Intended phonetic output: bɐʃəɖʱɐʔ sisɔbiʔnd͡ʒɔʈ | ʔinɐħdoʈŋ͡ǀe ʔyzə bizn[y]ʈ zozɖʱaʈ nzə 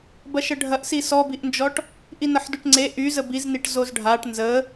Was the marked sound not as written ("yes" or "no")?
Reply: yes